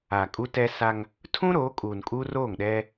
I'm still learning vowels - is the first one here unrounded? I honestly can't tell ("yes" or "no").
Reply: yes